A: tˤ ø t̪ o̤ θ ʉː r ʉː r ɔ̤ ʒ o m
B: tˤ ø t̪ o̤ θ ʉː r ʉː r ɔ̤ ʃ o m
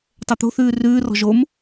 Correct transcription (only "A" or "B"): A